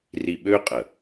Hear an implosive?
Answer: yes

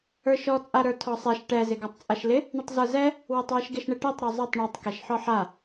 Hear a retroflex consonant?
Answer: yes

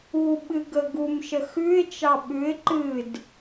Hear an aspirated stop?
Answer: no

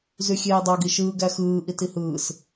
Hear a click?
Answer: no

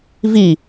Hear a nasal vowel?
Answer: no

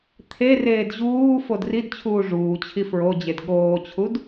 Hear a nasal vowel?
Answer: no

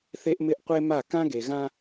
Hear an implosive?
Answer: no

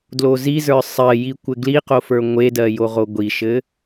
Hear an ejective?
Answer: no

